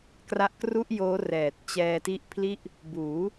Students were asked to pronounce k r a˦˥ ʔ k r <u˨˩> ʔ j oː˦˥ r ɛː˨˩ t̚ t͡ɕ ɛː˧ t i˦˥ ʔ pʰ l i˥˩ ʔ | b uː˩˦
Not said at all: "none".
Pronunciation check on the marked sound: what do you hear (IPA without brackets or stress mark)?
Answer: u˥˩